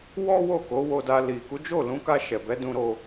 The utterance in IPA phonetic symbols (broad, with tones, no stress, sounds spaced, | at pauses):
w ɔ˦ w o˦˨ k o˨˦ w o˧ d a˧ l i˨ k u˨˦ d͡ʒ o˦˨ l ũ˨˦ k a˧ ʃ ɛ˨ b ɛ˨˦ d ũ˧ ɾ o˧